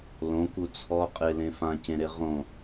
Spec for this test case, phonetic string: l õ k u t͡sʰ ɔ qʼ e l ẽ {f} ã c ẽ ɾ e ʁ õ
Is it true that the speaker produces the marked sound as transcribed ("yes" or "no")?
yes